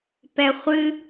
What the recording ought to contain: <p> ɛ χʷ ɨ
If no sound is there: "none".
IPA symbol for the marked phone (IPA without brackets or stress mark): p